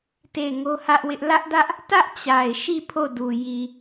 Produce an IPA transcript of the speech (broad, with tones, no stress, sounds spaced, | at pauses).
t e˦˨ ɪ̯ ŋ o˦ h ä˦ ʔ w ɪ˦ ʔ l ä˦ ʔ d ä˦ ʔ | t ä˦ ʔ t͡ɕ a˨ ɪ̯ ʃ i˦˨ pʰ o˦˨ d u˨ j i˨